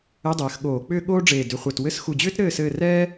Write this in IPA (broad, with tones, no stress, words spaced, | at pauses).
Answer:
ɘ˧˥˧dˤɛː˩˧xɠoː˧˩˧ k͡pʏː˥ɠoː˥ɖ͡ʐeː˨˩ dʏ˨˩χʷɛ˨˩t wɘ˧˥˧sxu˨˩d͡ʑʏː˥t ɾɘː˦˨sɘː˦˨rɛː˥